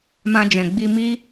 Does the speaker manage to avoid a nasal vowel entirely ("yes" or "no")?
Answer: no